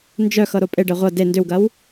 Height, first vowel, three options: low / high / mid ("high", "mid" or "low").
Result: mid